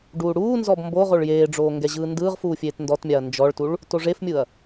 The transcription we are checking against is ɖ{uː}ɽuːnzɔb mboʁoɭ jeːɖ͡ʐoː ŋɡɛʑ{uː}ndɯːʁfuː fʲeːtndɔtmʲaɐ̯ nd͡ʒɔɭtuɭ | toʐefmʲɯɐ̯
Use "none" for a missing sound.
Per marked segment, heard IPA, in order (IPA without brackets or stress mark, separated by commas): uː, ɯː